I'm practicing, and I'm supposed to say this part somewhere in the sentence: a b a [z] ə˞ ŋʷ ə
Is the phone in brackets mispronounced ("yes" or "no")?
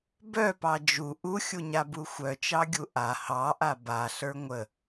yes